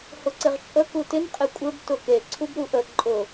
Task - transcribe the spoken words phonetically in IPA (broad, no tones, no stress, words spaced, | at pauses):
hʊǀɪʁt͡ʃʼə kutɪn qʼɪkʷʼɘb tʊke ǀʰubɾuʔə ǃʼʊ